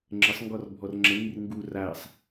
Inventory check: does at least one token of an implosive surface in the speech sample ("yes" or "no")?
no